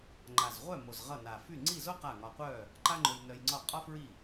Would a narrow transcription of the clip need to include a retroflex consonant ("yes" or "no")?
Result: no